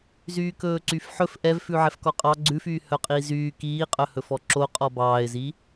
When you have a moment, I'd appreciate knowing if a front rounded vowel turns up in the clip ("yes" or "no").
yes